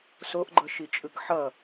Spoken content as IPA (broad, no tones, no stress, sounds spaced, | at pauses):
s o ʔ ɡ͡ǃ ʌ ʃ i t͡ʃʼ ɯ k ħ ʌ